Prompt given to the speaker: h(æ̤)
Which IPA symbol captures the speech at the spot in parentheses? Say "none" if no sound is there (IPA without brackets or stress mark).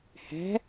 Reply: æ̤